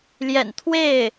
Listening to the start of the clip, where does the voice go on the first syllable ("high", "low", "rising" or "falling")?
low